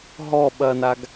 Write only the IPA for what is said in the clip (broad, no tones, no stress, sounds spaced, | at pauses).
ɦ ɔ ɓ ɐ n a ɡ